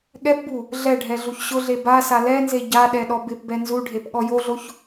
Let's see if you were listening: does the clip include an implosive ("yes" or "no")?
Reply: yes